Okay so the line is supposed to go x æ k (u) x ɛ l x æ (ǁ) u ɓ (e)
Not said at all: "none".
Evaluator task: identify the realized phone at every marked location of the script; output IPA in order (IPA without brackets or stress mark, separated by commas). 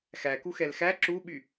u, ǁ, y